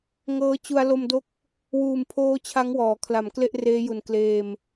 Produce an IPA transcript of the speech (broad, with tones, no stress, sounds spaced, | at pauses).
ŋ ɤː˦˥ t͡ɕ u˧ a̯ l o˧ m d o˦˥ k̚ | w uː˨˩ m pʰ oː˦˥ t͡ɕʰ a˦˥ ŋ w ɔː˩˦ kʰ l a˩˦ m k l e˥˩ ʔ r eː˦˥ j u˨˩ n k l eː˧ m